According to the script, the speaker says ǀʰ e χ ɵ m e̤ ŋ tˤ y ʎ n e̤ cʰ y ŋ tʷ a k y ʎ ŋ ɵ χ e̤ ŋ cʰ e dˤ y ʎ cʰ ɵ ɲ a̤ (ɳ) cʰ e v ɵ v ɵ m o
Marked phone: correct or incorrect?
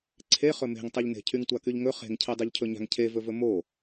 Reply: incorrect